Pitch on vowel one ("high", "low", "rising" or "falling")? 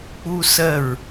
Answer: high